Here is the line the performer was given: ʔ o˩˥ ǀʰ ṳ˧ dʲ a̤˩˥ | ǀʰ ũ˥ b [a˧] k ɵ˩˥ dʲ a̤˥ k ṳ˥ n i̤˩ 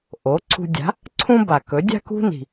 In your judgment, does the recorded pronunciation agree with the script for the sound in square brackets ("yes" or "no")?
no